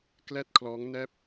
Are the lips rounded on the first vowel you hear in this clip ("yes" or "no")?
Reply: no